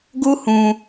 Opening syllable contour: high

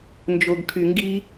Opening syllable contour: low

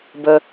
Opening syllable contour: high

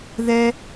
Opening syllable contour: high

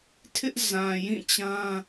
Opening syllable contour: high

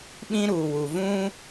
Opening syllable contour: high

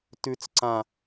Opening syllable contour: high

